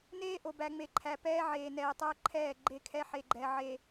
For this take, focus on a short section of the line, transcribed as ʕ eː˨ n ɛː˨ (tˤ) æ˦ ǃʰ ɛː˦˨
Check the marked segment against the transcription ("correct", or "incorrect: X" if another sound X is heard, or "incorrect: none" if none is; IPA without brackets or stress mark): correct